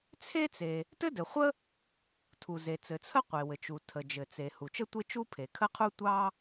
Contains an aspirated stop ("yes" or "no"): yes